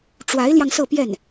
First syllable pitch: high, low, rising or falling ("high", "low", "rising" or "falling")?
rising